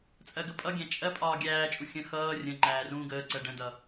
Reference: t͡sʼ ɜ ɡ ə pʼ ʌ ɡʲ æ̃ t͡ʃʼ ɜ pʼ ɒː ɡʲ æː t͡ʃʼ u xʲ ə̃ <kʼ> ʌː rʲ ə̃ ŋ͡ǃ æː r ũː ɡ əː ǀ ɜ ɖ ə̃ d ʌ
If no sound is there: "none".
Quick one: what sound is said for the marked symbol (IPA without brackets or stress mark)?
x